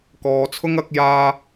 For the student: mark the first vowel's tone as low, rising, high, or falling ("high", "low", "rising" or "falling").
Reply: low